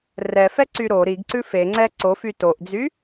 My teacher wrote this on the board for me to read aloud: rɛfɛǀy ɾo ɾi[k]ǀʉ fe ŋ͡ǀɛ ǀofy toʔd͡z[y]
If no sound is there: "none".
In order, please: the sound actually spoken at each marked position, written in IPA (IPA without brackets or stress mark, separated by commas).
ɡ, y